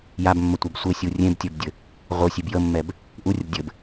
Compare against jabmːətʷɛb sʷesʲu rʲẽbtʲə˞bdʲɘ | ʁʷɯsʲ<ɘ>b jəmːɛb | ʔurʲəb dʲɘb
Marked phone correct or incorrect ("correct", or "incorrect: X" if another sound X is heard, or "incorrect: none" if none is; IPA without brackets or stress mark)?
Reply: incorrect: e